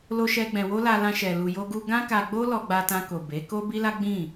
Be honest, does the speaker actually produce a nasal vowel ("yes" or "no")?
yes